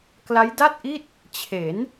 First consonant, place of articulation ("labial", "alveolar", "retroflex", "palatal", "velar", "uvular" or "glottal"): velar